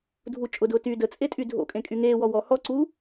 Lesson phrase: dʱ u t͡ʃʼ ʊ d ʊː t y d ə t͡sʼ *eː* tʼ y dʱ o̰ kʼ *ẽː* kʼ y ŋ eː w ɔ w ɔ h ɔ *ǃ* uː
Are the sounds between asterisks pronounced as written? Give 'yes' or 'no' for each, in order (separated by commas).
no, no, no